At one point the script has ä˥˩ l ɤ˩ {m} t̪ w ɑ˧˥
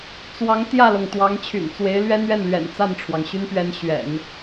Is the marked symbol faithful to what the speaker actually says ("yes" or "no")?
no